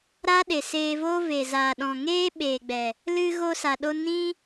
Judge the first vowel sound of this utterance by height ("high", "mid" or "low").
low